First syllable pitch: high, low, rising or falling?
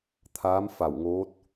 rising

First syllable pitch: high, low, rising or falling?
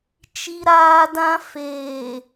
high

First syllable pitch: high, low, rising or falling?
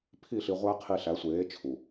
falling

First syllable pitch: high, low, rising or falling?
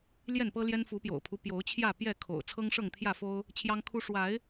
falling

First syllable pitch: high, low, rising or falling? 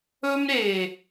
high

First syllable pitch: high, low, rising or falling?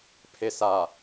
low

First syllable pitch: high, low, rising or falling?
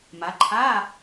rising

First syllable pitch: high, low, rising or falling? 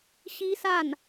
high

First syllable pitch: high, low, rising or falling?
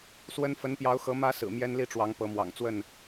high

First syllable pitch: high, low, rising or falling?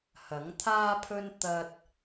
rising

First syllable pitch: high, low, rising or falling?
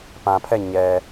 low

